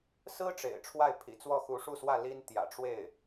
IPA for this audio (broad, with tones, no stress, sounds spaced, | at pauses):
s ɹ̩˥ ʈ͡ʂ ḛ˨˩ ɪ̯ ʈ͡ʂʰ w a˥˩ ɪ̯ pʰ ḭ˨˩ t͡s w ɔ˥˩ x u˧˥ ʂ u˥˧ s w ä˥˩ l i˥ n t̪ j ä̰˨˩ ʈ͡ʂ w e˥˩ ɪ̯